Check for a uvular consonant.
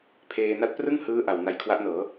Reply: absent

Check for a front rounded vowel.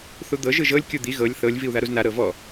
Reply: absent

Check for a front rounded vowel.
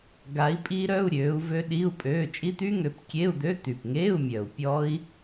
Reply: present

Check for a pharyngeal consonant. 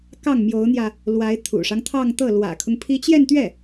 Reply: absent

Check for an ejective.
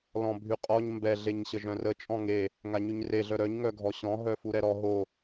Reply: present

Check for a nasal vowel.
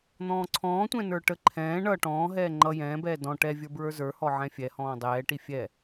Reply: present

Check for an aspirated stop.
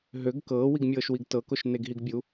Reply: absent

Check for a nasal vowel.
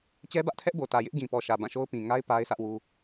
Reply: present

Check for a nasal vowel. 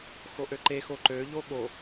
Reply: absent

